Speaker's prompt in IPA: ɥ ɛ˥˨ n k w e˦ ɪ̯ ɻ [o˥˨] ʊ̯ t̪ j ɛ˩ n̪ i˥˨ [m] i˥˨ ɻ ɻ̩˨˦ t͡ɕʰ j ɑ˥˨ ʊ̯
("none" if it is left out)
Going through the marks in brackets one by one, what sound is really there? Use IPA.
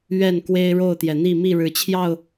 o˥˨, m

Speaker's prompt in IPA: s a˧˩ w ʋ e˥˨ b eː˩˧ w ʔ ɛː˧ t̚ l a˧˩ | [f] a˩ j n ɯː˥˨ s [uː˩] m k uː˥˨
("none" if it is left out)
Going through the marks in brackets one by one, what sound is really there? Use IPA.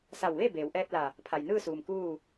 pʰ, uː˩

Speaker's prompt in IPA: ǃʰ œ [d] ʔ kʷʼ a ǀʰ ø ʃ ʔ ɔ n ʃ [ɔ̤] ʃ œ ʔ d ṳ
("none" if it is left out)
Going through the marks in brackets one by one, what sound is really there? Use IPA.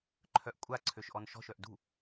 none, ɔ̤

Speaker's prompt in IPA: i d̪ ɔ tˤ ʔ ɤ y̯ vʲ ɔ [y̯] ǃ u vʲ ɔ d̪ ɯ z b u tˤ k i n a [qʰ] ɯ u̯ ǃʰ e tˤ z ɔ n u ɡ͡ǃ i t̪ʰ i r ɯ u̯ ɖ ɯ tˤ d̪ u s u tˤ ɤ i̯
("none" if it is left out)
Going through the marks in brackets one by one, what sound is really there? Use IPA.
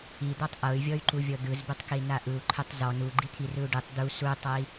y̯, ʔ

